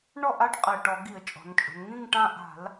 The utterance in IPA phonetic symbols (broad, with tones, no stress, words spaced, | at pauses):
ɳɔ˦˨ʔa˦ʈ qʼɛ˨˩ʈɔ˧˩˧ ɡi˧˩˧ə̯t͡ʃʼɔ̤˩˧nt͡ʃʼṳ˩˧n ŋĩ˦˨ŋʈã˦˨ ʔa̤˧˩˧l